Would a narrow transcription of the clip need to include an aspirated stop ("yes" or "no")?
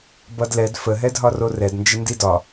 no